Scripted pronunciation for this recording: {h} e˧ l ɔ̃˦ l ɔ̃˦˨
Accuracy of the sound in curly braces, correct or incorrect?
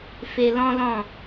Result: incorrect